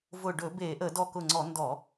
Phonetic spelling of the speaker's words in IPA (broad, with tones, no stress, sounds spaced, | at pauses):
v ʊ˧˩ ɖ ɵ˧˩˧ b e˧˩˧ ʔ ə˧˩˧ d ɔ˧˩ k ʊ˧˩ ŋ͡ǀ ɔ˧˩˧ n d ɔ˧˩˧